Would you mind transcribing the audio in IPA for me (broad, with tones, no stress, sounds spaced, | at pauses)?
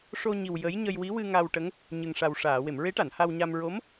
ʂ o˧ ɲ i˨˩ w j ə˧˥ j ɲ ə˧ j w i˧˥ w ɨ˧ ŋ a˧ w ʈ ə˧˥ ŋ | ɲ ɨ˨˩ ŋ ʂ a˨˩ w ʂ aː˨˩˨ w e˨˩˨ m ɹ e˧˥ ʈ a˨˩˨ n h a˧ w ɲ a˧ m ɹ o˧˥ m